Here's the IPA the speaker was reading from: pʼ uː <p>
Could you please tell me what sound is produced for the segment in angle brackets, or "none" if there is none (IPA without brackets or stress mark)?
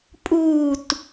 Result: t